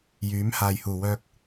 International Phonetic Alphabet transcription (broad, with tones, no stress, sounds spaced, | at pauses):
j yː˨˥ m h aː˨ j h uː˨˩ w œː˧ k̚